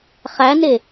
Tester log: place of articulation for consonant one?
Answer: uvular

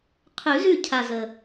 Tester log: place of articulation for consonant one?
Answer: uvular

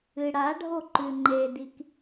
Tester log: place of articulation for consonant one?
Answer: retroflex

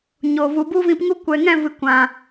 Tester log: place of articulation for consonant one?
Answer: palatal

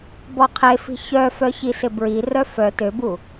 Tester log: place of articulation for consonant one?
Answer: labial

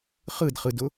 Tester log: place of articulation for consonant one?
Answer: uvular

